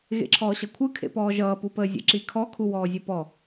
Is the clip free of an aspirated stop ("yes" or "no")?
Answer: no